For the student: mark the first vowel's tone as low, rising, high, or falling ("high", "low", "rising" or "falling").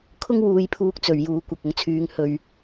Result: high